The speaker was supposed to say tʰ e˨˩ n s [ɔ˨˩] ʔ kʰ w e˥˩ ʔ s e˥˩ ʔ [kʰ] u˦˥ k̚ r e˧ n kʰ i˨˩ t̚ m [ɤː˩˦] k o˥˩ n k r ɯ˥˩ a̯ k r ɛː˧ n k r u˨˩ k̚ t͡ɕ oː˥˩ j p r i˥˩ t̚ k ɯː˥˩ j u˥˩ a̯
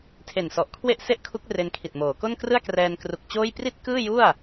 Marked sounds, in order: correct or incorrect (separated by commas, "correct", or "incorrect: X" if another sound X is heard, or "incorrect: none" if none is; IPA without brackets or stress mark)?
correct, correct, incorrect: oː˩˦